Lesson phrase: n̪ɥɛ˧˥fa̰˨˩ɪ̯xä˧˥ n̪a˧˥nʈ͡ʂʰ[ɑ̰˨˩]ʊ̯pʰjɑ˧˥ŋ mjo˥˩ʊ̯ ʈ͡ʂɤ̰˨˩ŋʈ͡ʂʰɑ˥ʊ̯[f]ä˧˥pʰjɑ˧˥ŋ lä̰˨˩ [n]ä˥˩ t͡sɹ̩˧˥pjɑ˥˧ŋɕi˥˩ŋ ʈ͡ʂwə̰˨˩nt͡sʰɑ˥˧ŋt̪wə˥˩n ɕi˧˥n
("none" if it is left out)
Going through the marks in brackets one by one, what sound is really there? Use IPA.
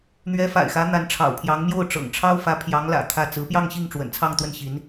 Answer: ɑ̰˨˩, f, t̪ʰ

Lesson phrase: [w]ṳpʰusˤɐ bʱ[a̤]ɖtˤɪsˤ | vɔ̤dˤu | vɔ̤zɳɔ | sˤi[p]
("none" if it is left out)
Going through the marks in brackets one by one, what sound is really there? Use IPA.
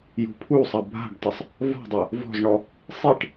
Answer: j, a̤, ʈ

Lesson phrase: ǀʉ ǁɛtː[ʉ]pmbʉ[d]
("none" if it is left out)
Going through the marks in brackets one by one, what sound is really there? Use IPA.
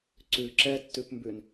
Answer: ʉ, n

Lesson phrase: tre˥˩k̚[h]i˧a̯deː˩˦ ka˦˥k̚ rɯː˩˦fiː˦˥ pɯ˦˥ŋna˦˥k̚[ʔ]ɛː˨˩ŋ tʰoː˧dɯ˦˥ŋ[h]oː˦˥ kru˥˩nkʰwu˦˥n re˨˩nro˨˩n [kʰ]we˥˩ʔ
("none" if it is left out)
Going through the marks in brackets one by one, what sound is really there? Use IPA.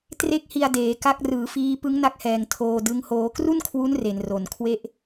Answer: h, h, h, kʰ

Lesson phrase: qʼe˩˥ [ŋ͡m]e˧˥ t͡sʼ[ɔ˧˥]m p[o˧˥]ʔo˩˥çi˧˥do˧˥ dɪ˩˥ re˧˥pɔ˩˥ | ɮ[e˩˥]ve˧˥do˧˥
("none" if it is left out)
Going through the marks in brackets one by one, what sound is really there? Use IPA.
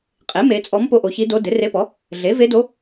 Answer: m, ɔ˧˥, o˧˥, e˩˥

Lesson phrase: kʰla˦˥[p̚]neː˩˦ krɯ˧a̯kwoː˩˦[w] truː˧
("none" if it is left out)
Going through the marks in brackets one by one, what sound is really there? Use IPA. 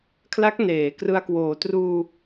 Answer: k̚, none

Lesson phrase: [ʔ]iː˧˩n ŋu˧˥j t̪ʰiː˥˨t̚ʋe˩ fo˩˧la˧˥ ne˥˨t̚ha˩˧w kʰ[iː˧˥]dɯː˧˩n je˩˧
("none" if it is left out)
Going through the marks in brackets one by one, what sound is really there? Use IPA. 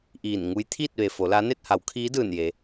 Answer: ʔ, iː˧˥

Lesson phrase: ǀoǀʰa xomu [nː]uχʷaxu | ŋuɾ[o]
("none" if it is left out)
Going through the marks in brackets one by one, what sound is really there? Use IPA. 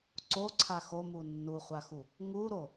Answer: nː, o

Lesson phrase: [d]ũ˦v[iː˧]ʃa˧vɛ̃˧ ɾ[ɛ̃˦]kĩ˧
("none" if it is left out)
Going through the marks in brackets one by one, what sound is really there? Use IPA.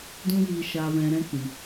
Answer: d, i˧, ɛ̃˦

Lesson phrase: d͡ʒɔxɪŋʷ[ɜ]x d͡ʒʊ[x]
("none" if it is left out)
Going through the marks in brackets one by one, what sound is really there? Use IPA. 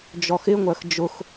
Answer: ɜ, x

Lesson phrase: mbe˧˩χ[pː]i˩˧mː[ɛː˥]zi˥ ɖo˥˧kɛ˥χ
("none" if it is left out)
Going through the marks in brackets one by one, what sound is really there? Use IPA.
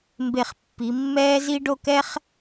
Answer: pː, ɛː˥

